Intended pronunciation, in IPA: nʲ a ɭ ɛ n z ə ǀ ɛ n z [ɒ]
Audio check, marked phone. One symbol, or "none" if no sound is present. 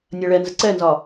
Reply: ɒ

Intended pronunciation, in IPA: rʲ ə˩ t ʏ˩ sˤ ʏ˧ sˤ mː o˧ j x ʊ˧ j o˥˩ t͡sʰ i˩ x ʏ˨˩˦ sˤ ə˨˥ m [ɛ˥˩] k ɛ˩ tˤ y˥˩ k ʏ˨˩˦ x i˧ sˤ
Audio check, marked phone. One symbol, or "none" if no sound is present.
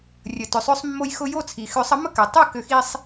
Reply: ə˥˩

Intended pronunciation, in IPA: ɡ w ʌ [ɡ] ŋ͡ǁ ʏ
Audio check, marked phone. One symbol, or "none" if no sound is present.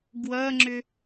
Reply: none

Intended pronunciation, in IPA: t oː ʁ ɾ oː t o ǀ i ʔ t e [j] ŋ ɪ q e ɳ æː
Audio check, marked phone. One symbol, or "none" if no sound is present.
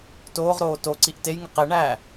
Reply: j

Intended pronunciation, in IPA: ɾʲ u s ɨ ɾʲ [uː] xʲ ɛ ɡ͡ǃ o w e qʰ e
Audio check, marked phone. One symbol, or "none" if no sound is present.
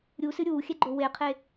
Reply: uː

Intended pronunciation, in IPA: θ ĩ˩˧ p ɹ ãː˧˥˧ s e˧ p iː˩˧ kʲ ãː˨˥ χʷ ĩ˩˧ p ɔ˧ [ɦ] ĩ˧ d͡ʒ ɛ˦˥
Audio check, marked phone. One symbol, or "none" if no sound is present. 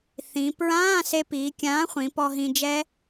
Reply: ɦ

